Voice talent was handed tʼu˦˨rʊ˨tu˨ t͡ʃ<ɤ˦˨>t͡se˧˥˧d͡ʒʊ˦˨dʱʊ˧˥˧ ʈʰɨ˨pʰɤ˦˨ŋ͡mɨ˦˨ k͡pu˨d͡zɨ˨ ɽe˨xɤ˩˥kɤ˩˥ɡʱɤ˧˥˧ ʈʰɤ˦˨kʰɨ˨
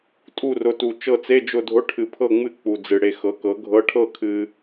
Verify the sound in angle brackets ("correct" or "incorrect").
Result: correct